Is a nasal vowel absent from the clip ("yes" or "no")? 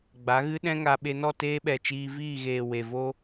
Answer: no